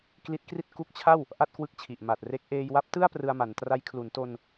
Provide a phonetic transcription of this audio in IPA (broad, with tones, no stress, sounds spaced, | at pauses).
k l i˦˥ t̚ k r i˥˩ t̚ k u˦˥ k̚ t͡ɕʰ a˥˩ w | ʔ a˥˩ t̚ k w ɯ˦˥ k̚ t͡ɕʰ i˨˩ ʔ m a˨˩ t̚ r e˦˥ k̚ ʔ eː˧ j w a˦˥ p̚ t ɯ˥˩ a̯ p r ɯ˧ a̯ m a˩˦ n t r a˦˥ j kʰ l u˩˦ n t o˧ n